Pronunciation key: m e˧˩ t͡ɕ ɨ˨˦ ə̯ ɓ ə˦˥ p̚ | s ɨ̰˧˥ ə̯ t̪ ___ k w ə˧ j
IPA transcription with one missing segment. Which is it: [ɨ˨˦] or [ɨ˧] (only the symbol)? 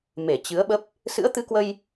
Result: ɨ˧